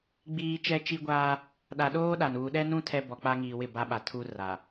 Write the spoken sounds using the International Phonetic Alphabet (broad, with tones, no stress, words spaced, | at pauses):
ɡ͡biː˦ t͡ʃɛ˦t͡ʃi˦ɡʷaː˦ | ɗa˨ɗoː˦ ɗa˨n uː˨ɗɛ˦nũ˦ tʰɛ˦ bɔ˨k͡pa˦ ŋiː˨wɪ˦˨ ba˦ɓa˨ tʰu˦ra˨